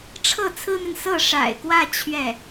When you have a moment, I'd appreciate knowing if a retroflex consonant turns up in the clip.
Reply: yes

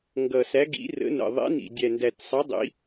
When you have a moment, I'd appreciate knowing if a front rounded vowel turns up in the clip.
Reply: no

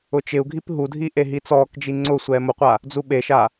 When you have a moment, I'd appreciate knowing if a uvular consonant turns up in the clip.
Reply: yes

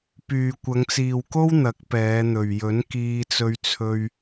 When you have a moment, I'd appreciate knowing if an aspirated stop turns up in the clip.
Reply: yes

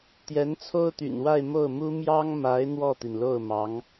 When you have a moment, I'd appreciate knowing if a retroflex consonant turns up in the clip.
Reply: no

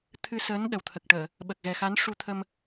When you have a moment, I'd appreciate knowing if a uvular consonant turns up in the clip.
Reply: no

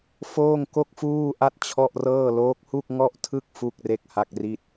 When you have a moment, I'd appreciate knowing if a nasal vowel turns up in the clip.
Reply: no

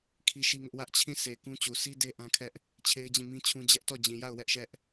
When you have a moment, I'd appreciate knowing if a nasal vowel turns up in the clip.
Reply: yes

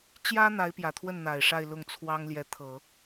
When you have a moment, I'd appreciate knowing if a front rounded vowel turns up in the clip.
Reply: no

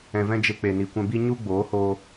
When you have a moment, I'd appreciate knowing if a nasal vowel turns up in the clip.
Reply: yes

